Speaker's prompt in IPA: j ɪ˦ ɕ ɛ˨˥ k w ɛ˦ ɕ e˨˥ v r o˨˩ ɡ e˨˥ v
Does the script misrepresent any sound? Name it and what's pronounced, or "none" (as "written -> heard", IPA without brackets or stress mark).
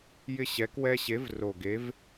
none